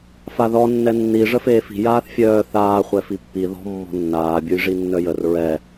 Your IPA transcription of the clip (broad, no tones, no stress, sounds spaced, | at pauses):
f a ð ɔ nː ɛ nː i ʐ ə f eː f i̤ j aː θ fʲ œː θ aː χʷ ɛ f i pː i ð ɔ̤ mː ɔ̤ nː aː bʲ u j ʐ i nː œ j ə r ɹ ɛ